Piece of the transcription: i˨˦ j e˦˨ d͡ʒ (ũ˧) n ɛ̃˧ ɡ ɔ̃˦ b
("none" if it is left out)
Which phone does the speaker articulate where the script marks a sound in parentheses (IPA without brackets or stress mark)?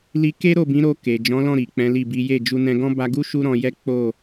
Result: u˧